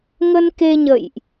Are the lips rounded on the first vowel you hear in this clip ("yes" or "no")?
no